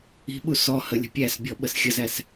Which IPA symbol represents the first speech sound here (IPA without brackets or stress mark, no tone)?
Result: i̤